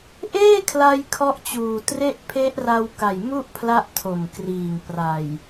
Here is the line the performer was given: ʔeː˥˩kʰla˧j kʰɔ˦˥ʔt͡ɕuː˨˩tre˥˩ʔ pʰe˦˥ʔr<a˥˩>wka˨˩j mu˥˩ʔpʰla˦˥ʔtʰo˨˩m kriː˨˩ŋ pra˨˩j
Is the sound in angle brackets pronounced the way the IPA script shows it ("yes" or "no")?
no